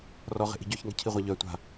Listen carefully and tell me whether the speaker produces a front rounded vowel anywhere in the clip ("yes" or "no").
yes